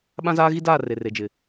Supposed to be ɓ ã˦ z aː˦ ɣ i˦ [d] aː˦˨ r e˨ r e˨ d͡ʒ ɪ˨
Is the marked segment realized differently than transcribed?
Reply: no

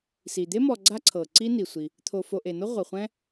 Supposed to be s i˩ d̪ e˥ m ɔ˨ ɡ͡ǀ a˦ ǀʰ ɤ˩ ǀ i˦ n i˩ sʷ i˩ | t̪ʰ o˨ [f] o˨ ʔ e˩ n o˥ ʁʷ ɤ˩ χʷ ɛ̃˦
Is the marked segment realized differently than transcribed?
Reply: no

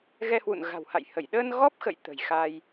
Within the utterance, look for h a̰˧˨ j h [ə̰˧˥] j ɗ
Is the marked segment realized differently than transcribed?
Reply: yes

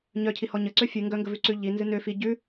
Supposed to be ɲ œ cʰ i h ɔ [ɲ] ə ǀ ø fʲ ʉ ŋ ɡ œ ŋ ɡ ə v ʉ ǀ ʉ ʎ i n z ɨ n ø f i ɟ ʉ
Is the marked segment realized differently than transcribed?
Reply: no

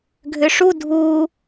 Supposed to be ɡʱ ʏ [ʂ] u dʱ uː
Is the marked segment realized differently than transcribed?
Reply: no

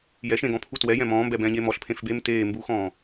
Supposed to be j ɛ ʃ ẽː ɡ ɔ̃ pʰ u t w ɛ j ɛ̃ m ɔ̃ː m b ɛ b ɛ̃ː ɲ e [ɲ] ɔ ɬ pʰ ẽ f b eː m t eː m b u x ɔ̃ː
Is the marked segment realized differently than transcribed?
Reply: yes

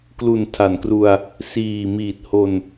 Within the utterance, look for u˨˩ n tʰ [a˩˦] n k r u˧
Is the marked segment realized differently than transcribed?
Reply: no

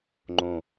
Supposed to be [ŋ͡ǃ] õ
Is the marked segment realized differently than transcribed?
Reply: no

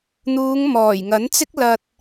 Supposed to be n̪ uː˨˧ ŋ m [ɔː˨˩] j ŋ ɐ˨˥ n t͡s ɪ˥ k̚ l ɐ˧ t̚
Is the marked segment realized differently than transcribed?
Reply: no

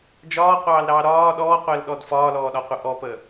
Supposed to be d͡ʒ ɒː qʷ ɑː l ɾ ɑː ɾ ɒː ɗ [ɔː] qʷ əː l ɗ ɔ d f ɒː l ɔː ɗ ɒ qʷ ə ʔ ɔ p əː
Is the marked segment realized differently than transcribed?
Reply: no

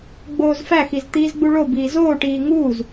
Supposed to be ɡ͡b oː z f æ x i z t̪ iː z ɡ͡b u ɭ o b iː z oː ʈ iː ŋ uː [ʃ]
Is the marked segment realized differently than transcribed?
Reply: yes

